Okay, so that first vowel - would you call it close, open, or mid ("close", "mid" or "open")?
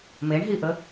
mid